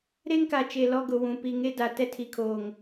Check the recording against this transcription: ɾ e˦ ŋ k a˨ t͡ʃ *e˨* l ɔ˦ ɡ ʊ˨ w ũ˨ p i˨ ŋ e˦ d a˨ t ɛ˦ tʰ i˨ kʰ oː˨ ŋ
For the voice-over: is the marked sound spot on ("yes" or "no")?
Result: yes